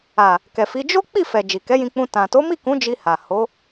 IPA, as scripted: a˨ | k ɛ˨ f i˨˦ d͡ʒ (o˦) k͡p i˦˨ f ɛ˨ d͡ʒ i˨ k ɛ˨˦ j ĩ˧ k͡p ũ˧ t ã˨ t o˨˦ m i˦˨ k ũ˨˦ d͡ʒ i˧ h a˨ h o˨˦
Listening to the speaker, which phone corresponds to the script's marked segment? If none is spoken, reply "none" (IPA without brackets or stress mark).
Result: o˦